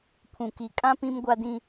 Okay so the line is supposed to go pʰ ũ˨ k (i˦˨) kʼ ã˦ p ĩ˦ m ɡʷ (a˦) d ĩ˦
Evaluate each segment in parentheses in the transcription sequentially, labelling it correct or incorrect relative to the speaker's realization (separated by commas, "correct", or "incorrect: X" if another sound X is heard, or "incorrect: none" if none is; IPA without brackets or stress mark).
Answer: incorrect: i˨, correct